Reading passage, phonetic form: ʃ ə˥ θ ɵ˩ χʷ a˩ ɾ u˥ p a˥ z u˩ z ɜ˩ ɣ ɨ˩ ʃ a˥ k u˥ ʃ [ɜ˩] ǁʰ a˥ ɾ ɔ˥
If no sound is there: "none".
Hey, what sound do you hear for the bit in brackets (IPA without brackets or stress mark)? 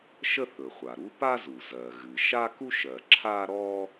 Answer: ɜ˩